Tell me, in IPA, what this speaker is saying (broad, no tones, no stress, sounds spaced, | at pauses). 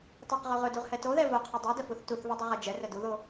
tˤ ɛ q ʁ o ʁ ɵ d u ʁ h ɛ t o ð ɛ v o qʰ ɵ dˤ ɛ d ə f u θ t u θ v u dˤ u ʁ ɛ d͡ʒ ɛ r ə d u ð o